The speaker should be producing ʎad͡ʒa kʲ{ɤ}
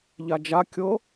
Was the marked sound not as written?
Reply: no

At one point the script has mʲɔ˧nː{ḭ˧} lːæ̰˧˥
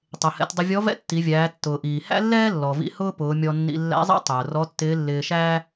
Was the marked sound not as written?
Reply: no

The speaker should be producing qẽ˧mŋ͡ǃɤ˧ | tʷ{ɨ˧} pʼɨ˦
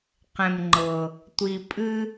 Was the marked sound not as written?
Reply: yes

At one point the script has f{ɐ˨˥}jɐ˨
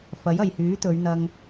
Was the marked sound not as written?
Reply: no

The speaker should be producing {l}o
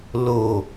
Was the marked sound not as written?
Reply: no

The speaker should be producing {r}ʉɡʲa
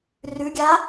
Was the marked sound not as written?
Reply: no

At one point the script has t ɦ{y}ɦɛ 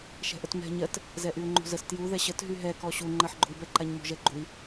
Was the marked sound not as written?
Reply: no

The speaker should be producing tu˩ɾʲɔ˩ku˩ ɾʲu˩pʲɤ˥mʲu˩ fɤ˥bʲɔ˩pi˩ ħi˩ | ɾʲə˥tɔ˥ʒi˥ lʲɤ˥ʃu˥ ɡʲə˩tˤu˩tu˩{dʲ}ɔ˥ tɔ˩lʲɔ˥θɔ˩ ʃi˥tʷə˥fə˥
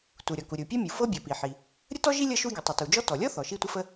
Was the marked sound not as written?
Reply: yes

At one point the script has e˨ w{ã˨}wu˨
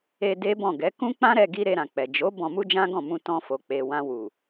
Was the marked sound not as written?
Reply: yes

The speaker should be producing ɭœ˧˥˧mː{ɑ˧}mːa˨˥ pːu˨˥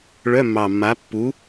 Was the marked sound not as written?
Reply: yes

